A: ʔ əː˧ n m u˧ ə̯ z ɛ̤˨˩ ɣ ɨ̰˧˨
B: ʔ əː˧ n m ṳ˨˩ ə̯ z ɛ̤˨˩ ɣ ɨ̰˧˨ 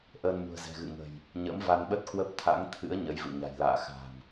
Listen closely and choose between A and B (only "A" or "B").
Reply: B